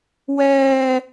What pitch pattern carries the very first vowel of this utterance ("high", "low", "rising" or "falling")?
high